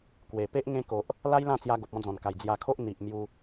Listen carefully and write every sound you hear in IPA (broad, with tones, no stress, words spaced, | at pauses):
kwe˨˩pe˦ʔ ŋẽ˧ko˨ʔ | la˦jlã˥˧t͡sja˧ ɡo˨p̚ɔ̃˧d͡zɔ̃˨˩nka˨˩j d͡zja˧kʰo˦ʔ n̪i˨ʔ mju˦